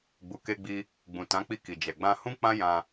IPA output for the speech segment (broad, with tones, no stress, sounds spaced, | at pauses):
ɡ͡b u˨ k e˧ ɡ͡b i˧ | ɡ͡b ũ˨ t ã˨˦ k͡p i˧ k i˨ d͡ʒ ɛ˨ ɡ͡b ã˧ h ũ˦ k͡p ã˦ j ã˧